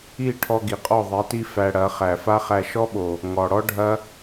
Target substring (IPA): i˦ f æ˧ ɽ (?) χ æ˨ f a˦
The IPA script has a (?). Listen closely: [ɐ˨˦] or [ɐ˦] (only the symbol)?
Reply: ɐ˨˦